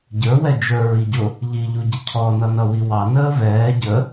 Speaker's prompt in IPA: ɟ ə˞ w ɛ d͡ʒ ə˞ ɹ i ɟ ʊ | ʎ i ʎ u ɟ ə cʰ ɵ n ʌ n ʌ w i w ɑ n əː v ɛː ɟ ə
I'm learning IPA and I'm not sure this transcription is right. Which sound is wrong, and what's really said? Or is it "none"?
ɵ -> ɔ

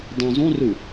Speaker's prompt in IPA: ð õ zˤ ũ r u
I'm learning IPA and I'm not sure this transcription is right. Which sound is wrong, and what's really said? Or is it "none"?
ð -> dˤ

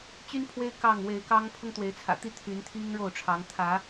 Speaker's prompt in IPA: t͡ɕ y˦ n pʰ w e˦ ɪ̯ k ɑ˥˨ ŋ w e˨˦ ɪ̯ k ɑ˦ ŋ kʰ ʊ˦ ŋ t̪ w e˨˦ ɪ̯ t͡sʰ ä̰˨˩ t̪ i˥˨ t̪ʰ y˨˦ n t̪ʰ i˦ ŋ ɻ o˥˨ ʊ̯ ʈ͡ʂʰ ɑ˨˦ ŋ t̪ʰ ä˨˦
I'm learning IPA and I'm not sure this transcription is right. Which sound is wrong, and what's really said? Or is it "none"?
kʰ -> pʰ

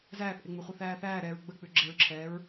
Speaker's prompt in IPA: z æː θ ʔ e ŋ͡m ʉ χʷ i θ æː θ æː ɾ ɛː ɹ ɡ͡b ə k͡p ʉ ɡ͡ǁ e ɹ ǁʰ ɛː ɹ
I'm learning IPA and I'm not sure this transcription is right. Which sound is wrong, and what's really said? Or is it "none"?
none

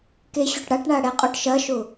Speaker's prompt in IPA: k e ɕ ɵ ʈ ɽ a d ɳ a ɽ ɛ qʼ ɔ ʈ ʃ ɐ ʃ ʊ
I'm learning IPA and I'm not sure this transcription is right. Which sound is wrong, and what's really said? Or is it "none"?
d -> ʈ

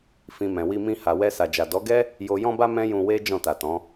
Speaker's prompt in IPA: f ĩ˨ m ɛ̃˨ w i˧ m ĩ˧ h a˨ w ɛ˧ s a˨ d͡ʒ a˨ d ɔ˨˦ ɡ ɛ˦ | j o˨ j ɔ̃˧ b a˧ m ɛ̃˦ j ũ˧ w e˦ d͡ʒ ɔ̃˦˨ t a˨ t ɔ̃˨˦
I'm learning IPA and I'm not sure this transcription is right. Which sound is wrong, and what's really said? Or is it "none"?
none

